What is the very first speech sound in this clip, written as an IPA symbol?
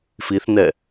f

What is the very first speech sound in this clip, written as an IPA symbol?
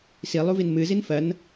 s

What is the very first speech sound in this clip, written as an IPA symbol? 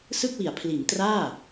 s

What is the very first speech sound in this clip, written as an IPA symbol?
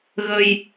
ɣ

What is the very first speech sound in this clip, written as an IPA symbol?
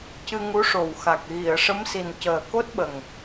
c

